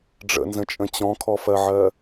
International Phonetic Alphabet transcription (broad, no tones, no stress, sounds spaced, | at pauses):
ɖ͡ʐ ə̰ n z ə̃ t͡ʃʼ ə̃ t͡ɕ ɔ̃ kʰ ɔ f ɜ ʕ ɜ